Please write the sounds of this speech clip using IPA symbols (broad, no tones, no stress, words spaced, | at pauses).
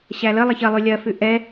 ɕæləlˠɐç ɐ lˠʉlʲɐfʉ ʔɛ